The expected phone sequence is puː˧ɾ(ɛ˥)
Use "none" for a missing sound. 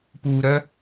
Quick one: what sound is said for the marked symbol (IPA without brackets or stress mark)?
œ˥